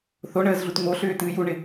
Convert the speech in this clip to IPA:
θ o ɳ əː z ɮ u t ŋ o ɬ ʏː t ɨː j u ɳ ɪ

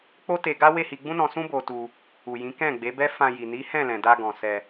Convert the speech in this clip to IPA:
k͡p o˦ t e˧ ɡ a˦ w e˦˨ h i˧ ɡ͡b ũ˦ n ɔ̃˧ s ũ˦ b o˧ t u˧ | u˨ j ĩ˨˦ k ɛ̃˦˨ ɡ͡b e˨˦ b ɛ˦ f ã˧ j i˨ n i˨˦ h ɛ̃˦˨ l ɛ̃˨ d a˧ ɡ ɔ̃˨ s ɛ˧

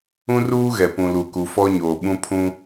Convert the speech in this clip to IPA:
ũ˦ r uː˦ ɣ ɛ˨ p ũ˨ l u˨ k u˨ f ɔ˦ ɲ oː˨ ɓ ũ˦ pʰ ũ˦

